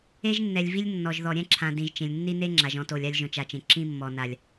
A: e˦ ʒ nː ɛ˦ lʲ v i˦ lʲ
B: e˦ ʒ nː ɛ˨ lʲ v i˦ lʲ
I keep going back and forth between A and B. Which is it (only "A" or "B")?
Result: B